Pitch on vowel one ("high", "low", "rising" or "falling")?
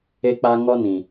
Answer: high